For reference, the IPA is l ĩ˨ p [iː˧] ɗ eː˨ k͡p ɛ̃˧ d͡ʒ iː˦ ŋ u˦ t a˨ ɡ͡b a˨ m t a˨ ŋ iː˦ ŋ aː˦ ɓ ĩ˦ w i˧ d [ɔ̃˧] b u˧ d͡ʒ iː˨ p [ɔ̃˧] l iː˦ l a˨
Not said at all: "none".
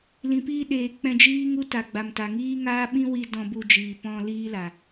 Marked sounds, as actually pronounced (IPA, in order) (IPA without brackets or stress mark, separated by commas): iː˧, ɔ̃˧, ɔ̃˧